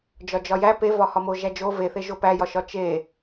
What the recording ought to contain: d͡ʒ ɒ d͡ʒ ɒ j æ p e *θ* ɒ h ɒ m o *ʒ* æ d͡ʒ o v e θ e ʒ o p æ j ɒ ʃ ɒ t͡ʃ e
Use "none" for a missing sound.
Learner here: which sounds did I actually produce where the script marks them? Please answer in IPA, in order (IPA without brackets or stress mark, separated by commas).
v, ʒ